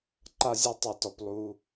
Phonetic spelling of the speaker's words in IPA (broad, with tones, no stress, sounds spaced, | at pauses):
ǃ a˧ zʲ ɜ˧ tˤ ɯ˩ t ɔ˩ p lˠ u˩